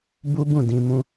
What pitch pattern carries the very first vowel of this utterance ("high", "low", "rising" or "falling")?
high